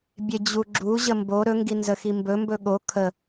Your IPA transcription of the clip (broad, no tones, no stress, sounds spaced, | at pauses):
bʲ e d͡ʑ u ɡ͡ǁ u ʑ ə m b o ɾ ɵ ŋ ɡ i n z ə x i m b ɵ m b ɵ ɠ o kʰ ə